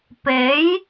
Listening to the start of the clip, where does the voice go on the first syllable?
rising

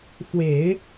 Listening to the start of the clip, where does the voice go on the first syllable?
low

